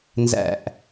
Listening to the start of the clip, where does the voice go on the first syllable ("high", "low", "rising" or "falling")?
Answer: falling